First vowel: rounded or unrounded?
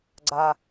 unrounded